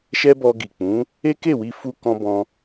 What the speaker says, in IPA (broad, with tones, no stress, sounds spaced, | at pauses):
ʃ ɛ˦ b ɔ˧ ɡ i˨ k͡p ũ˨˦ | e˦ k e˦˨ w i˧ f u˧ k ɔ̃˧ b ɔ̃˧